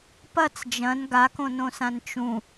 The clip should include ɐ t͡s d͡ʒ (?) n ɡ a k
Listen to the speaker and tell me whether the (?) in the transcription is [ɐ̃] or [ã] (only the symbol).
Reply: ɐ̃